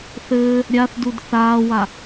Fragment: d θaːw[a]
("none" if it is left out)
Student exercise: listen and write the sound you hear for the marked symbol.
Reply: a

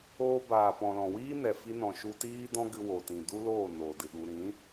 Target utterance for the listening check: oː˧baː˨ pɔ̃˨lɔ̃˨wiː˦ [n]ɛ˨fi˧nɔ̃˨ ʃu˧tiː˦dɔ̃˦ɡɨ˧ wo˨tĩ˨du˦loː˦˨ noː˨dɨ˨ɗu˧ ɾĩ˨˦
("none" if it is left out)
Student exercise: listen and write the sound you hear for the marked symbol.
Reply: n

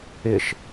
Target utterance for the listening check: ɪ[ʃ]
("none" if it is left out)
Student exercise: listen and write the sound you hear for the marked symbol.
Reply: ʃ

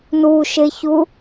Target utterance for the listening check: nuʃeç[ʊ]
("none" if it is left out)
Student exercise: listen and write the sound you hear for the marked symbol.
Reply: u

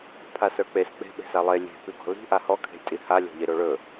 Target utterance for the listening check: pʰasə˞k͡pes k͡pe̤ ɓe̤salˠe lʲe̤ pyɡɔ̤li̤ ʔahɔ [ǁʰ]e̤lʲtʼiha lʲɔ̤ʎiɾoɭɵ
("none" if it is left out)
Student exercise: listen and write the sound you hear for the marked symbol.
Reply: kʰ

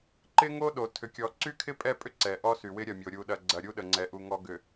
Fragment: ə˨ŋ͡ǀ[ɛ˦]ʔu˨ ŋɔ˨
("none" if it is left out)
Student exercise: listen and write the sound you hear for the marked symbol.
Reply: ɛ˨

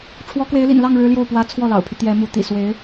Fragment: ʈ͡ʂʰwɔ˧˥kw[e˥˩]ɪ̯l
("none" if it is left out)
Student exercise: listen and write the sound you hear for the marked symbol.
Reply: e˧˥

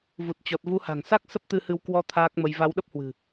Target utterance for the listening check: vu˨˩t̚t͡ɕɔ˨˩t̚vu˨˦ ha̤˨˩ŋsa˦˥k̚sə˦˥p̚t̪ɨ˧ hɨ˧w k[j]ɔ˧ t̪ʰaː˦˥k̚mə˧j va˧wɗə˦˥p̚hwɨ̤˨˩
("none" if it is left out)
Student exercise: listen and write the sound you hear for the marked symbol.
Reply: w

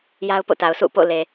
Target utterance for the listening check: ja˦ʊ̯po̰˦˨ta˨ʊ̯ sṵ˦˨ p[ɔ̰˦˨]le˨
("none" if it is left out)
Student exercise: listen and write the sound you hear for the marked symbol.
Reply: o̰˦˨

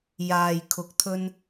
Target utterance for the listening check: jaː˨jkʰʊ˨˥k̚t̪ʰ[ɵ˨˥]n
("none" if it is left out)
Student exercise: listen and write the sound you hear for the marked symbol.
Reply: ɵ˧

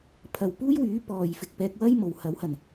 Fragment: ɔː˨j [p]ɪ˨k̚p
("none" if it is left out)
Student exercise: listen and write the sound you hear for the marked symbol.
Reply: f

